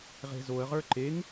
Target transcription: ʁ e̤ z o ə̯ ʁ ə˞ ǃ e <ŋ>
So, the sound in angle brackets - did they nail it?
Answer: yes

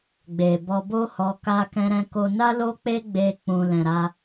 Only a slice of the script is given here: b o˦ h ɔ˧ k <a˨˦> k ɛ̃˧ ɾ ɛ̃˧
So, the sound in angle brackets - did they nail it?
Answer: no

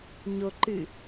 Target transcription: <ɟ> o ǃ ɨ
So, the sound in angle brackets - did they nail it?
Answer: no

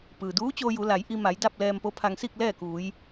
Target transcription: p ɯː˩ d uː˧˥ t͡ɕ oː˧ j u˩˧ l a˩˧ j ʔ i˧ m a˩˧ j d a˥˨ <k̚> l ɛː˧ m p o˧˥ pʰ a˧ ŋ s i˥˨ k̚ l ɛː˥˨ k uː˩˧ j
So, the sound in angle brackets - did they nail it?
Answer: no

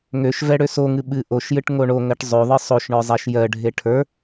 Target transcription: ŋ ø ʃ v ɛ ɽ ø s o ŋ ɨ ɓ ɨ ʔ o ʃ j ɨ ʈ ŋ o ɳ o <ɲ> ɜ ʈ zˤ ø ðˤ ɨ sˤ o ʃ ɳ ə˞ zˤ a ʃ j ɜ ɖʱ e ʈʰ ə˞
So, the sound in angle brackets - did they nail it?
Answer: no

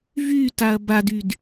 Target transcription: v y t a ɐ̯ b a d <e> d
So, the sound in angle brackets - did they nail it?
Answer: no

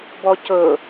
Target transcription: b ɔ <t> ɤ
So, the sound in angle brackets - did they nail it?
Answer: no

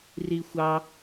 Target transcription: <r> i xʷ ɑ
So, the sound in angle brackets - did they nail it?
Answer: yes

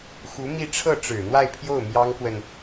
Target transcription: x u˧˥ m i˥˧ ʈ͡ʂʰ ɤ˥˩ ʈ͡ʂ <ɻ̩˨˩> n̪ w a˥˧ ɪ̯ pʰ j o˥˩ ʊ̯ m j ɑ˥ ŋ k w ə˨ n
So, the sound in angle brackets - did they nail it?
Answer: yes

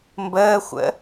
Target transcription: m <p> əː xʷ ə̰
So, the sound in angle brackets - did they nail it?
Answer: no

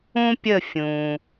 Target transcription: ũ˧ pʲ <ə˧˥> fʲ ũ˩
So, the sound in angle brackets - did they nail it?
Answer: no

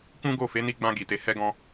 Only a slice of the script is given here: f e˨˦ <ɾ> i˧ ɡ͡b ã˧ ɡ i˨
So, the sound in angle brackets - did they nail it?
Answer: no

